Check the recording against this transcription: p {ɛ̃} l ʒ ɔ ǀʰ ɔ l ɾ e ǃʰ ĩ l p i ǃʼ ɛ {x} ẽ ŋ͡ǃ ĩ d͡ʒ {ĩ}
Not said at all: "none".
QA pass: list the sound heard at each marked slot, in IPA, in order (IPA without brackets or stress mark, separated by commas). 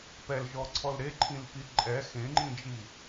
ɛ, x, i